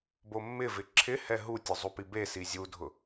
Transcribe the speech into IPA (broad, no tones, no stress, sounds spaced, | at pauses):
b o mː ɪ v ɪ ǁʰ ɪ h ɛ ɦ u tʲ ʊ zˤ u p i b e s i zʲ u dʱ ʊ